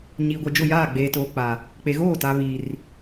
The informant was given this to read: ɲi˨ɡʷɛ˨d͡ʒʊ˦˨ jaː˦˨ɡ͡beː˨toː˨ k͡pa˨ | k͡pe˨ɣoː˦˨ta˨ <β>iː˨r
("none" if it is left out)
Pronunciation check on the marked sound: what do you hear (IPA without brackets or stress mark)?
β